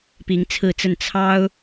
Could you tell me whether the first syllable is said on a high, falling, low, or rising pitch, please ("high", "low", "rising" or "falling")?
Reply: rising